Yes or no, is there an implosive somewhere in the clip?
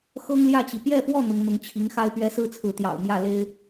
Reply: no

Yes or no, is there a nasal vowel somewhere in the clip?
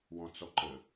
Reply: yes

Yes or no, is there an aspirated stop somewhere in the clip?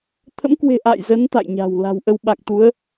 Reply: yes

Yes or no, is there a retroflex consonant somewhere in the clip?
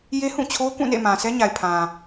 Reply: no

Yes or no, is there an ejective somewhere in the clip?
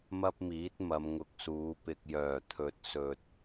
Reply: no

